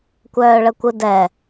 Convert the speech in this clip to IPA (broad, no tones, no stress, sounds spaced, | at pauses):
kʷ œː ɭ ə kʷ ɯ d ɛ